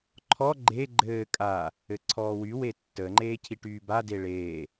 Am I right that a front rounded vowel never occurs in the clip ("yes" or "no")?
no